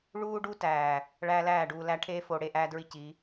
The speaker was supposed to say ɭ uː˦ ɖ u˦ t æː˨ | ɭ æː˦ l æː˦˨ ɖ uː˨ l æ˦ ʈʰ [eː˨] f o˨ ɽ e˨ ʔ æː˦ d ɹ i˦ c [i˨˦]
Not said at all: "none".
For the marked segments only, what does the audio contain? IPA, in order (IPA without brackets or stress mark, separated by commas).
eː˦, i˨˦